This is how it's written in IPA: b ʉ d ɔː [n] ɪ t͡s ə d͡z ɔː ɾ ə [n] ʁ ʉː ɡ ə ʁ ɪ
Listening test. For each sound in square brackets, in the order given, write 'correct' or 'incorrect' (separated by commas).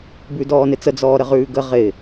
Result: correct, incorrect